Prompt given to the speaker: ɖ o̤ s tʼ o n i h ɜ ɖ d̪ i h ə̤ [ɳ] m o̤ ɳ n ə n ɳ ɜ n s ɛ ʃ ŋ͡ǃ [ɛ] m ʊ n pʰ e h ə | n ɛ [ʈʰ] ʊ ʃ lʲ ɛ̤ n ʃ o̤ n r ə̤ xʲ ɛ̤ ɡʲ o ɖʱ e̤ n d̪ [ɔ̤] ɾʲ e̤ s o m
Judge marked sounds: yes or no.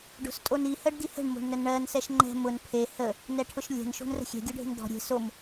yes, no, yes, yes

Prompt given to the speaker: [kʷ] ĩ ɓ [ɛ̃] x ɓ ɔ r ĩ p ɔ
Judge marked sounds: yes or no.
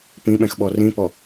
no, yes

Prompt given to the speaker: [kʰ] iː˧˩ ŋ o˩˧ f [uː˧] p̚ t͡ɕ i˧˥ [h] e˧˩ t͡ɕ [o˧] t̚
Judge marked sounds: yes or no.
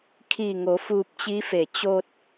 yes, yes, no, yes

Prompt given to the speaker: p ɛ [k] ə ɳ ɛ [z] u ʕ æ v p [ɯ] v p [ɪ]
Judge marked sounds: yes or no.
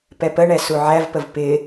no, no, no, yes

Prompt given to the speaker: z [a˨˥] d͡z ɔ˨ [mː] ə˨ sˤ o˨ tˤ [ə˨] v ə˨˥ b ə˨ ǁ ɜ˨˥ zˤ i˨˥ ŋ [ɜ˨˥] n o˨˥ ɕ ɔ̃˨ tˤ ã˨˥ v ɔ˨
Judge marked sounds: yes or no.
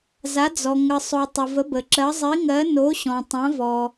yes, no, yes, yes

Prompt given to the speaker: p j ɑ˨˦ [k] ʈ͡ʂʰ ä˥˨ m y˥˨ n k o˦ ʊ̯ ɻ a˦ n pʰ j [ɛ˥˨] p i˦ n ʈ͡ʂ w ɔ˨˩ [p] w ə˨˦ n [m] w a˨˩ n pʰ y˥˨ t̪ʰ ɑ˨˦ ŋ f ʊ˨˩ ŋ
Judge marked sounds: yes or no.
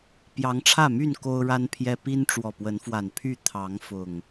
no, no, yes, no

